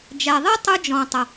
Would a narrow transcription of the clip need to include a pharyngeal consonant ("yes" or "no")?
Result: no